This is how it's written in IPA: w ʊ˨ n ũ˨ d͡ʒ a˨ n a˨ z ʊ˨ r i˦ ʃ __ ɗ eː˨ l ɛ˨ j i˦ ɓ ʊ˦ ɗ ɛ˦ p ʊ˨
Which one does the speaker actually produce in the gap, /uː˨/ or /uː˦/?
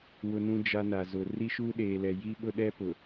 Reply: uː˦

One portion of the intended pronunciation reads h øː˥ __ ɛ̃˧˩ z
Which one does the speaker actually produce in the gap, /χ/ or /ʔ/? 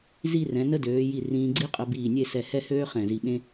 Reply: χ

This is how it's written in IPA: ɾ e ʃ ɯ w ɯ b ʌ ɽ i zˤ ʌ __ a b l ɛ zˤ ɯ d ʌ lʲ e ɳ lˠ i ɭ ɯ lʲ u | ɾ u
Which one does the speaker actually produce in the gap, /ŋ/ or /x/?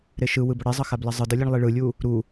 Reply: x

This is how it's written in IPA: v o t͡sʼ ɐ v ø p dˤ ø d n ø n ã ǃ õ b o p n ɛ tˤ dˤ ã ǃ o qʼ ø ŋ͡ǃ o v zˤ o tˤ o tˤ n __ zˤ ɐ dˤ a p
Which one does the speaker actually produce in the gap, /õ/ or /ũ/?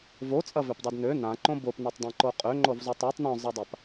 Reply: õ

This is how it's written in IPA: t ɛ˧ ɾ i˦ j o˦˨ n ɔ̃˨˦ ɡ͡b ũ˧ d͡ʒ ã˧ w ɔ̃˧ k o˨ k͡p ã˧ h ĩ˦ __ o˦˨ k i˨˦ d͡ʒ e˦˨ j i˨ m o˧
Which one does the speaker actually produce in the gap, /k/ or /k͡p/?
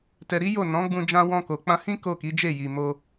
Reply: k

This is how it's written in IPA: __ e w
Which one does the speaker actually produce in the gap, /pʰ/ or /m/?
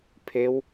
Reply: pʰ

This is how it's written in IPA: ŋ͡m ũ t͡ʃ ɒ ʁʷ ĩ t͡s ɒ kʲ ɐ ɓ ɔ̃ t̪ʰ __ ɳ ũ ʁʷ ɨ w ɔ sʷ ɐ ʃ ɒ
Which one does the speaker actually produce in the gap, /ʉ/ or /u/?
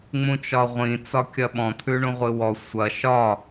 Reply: ʉ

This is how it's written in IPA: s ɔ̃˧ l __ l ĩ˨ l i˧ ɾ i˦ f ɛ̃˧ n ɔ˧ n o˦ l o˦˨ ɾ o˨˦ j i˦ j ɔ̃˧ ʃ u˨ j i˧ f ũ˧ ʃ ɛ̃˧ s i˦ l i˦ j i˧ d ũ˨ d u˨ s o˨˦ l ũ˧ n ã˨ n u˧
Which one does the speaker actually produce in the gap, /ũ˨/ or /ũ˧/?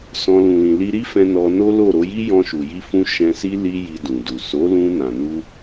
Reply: ũ˨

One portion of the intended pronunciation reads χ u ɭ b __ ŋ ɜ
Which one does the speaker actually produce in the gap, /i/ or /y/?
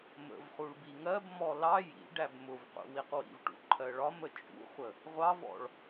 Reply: i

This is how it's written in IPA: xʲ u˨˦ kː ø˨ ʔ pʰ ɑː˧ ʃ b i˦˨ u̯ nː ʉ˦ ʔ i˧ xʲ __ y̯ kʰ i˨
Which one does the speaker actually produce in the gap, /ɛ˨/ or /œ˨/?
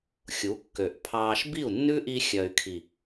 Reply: œ˨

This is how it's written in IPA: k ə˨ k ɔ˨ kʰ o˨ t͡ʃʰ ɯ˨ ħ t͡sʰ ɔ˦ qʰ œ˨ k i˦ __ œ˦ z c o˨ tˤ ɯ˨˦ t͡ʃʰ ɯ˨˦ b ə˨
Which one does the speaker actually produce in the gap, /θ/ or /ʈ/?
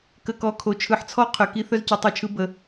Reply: θ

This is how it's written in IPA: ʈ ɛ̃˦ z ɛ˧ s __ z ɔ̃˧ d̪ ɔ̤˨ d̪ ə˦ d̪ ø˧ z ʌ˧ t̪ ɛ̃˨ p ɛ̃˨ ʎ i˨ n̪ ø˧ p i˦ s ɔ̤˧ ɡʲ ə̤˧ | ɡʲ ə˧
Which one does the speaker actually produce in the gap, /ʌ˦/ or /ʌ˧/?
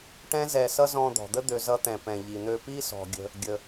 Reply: ʌ˦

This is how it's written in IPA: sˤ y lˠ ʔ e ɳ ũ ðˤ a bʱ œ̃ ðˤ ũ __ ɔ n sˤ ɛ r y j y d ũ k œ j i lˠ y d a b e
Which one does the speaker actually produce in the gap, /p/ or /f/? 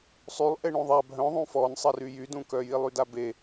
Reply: f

